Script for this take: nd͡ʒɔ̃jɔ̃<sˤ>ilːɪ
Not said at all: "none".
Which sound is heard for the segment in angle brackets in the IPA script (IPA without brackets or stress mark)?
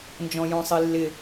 sˤ